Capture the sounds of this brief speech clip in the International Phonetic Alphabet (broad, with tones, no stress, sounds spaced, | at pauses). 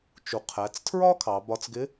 t͡ʃ u˩ qʰ æ˩˧ t͡s tʰ ɹ ɒ˥ kʰ ɑ˩˧ b ɒ˧ t͡s ɡ ɪ˧˥